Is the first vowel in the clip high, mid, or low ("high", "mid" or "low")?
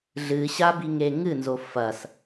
high